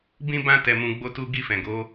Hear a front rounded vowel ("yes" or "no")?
no